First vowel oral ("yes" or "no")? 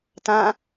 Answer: no